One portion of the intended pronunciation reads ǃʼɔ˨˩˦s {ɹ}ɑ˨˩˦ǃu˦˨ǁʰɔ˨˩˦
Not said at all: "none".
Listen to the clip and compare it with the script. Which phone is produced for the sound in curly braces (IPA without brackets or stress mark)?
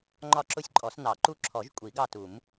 n